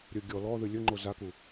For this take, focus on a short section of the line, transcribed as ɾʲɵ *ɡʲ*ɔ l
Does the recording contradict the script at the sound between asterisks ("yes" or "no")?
no